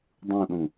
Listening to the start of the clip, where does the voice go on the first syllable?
falling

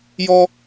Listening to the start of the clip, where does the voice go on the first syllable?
high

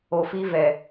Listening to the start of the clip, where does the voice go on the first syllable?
low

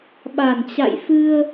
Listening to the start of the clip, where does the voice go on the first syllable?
low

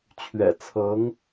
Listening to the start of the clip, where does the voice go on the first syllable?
low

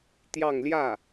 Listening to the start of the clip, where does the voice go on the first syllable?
falling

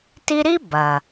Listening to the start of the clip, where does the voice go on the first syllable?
high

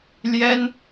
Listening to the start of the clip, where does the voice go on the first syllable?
high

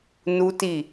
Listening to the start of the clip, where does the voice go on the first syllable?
high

